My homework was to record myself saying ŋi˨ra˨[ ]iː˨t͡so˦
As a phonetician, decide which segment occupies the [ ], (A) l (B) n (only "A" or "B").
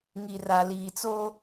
A